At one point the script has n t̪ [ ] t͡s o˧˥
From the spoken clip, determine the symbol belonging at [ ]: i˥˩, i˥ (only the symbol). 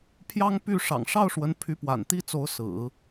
i˥